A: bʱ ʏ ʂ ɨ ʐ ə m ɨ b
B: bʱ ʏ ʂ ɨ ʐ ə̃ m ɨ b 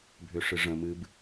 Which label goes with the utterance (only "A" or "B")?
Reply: B